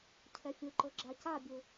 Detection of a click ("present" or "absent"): present